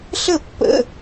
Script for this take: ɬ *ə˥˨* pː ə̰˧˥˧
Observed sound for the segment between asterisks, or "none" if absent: ə˥˨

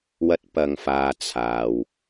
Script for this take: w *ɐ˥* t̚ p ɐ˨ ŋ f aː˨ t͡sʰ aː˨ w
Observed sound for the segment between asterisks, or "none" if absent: ɐ˧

